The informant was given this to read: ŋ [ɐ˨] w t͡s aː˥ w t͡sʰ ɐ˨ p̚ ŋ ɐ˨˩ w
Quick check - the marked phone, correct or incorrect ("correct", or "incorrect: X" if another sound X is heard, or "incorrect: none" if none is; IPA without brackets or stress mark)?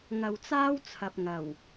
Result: correct